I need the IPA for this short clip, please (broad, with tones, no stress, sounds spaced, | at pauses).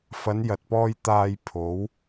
f ɐ˨˧ n j ɐ˨ t̚ p ɔː˧ j t̪ aː˧ j pʰ o˨˧ w